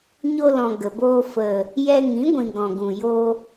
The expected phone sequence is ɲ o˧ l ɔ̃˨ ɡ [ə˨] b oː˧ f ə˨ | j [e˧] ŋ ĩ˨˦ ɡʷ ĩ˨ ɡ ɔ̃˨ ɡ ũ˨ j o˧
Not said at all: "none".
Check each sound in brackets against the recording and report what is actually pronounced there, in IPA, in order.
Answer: ə˨, ɛ˧

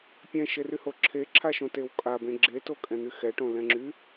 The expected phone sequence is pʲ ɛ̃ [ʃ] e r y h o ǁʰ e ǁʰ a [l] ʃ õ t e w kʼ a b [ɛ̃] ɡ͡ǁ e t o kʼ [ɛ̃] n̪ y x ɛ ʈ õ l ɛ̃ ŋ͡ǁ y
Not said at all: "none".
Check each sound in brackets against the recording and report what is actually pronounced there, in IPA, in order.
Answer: ʃ, none, ẽ, ɛ̃

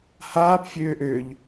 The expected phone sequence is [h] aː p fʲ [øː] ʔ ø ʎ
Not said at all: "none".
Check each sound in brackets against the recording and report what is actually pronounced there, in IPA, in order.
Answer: h, øː

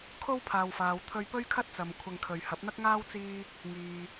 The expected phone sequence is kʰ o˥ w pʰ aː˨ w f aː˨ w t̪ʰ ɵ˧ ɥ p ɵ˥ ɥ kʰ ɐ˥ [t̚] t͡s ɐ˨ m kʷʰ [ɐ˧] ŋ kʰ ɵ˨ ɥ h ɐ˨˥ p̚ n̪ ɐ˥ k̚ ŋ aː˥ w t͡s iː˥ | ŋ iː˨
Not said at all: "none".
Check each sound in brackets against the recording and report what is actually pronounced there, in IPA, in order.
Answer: t̚, ɐ˧

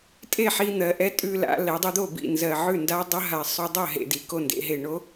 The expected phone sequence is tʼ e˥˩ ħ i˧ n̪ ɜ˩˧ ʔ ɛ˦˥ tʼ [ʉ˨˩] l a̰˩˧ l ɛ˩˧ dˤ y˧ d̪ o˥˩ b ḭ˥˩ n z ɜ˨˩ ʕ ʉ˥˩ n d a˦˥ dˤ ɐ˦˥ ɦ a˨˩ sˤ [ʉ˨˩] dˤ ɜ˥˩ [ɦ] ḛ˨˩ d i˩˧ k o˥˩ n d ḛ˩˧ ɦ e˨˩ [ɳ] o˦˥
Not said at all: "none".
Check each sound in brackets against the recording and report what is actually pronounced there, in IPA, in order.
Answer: ʉ˧, ʉ˧, ɦ, ɳ

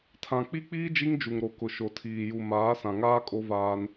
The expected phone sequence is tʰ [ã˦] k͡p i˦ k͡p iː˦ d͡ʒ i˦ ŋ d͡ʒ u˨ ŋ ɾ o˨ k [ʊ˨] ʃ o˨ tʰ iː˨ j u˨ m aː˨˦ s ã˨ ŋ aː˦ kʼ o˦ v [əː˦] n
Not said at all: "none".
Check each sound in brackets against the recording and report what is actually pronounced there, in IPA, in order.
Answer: ã˨, ʊ˨, aː˦

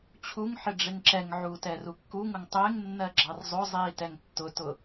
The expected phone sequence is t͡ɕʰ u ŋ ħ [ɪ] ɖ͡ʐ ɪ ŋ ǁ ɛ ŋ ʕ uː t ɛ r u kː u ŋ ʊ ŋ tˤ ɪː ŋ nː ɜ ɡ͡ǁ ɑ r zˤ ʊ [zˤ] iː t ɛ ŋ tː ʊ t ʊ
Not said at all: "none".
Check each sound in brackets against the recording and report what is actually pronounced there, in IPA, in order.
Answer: ɪ, zˤ

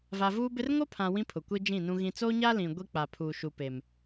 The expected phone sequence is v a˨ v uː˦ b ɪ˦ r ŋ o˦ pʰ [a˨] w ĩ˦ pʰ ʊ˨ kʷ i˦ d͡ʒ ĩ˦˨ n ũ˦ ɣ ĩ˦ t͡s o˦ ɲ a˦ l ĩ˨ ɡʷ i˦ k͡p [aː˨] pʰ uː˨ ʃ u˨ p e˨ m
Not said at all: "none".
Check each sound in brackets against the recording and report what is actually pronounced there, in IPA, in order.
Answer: ã˨, a˨

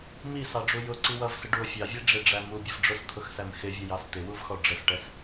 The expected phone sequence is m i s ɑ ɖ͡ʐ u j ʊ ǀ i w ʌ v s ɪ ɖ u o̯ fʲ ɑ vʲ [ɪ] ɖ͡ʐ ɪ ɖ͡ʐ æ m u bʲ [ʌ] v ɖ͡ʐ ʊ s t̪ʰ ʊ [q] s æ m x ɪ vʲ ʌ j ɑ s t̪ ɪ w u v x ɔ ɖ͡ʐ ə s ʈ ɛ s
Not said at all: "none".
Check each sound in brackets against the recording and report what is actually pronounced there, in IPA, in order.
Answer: ɛ, ʌ, x

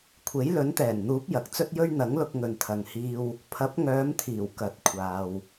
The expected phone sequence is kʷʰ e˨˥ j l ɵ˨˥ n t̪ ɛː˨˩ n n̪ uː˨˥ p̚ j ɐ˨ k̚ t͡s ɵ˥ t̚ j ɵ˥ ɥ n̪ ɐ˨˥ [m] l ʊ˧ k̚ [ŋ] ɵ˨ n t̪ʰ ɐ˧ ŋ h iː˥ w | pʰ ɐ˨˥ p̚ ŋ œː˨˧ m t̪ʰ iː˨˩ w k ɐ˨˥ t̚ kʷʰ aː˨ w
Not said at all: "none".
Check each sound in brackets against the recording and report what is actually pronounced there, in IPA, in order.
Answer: ŋ, ŋ

